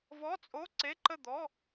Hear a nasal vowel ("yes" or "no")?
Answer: no